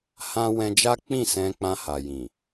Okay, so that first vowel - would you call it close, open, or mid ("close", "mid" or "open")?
open